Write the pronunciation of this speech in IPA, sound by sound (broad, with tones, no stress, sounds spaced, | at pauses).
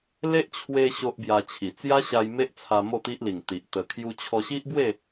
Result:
l e˦ ʔ t͡ɕʰ w e˧ ɕ o˦ ʔ b j a˧ t͡ɕʰ i˨˩ t͡s j a˦ ɕ a˧ j m e˦ ʔ t͡sʰ a˧ m o˥˧ t̪ i˦ ʔ l i˨˩ ŋ t̪ i˨ ʔ t̪ ə˧ kʰ j u˦ t͡ɕʰ ɔ˧ ɕ i˦ ʔ b w e˥˧